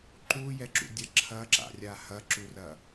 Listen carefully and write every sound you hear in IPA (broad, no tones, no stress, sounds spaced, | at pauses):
ǃ u j ɛ ǁ ṵ dʲ ɐ ǁʰ ɐ ǁ a̰ rʲ a h ɐ ǁ u r ɐ